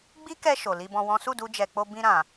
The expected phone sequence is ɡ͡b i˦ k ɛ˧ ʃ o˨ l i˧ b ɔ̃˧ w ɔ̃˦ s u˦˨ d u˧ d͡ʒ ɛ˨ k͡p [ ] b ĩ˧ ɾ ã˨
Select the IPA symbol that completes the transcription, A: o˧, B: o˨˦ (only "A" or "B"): A